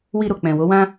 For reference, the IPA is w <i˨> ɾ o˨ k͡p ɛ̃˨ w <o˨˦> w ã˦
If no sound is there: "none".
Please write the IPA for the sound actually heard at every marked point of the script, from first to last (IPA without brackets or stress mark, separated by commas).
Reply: i˧, o˨˦